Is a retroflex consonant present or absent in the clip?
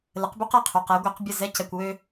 absent